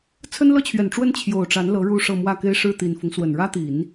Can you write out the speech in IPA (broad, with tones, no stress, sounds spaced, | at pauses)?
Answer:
t͡sʰ ə˥ n l ɤ˥ t͡ɕʰ ɥ ɛ˨˩ n ʈ͡ʂ w ə˥ n t͡ɕʰ j o˨˩ ʊ̯ ʈ͡ʂ a˧˥ n l ɤ˧˥ ɻ u˥˧ ʂ ɤ˥˧ m w ä˥˩ k e˥ ɪ̯ ʂ ɻ̩˥˩ t̪ i˨˩ n f ʊ˦ ŋ s w ə˨˩ n ɻ ä˥ t̪ i˨˩˦ n